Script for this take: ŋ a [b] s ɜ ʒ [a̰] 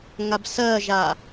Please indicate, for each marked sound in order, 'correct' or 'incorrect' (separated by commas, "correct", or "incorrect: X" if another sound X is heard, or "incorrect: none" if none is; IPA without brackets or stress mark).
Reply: correct, incorrect: a